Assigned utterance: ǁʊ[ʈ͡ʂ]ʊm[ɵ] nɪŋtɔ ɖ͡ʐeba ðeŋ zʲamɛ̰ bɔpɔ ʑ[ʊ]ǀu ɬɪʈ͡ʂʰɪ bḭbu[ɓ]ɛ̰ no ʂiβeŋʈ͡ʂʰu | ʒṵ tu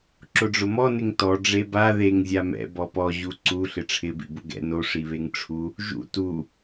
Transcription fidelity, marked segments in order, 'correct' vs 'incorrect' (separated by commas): incorrect, incorrect, incorrect, incorrect